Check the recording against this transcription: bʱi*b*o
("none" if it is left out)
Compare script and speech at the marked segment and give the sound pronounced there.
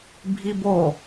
b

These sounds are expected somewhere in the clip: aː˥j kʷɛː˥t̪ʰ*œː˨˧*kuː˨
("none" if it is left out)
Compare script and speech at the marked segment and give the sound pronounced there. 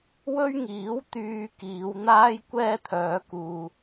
œː˨˧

